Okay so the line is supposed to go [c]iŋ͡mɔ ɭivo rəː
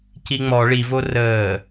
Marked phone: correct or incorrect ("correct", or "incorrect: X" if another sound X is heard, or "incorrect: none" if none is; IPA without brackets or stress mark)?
correct